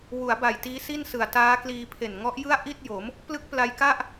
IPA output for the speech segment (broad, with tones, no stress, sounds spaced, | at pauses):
w u˩˦ a̯ b a˨˩ j t iː˦˥ s i˥˩ n s ɯ˨˩ a̯ t aː˦˥ k l iː˧ pʰ e˨˩ n ŋ ɔ˦˥ ʔ j ɯ˥˩ a̯ ʔ i˥˩ t̚ j o˩˦ m | p l ɯ˦˥ k̚ p l a˧ j k a˥˩ ʔ